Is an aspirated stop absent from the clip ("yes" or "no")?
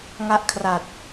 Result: no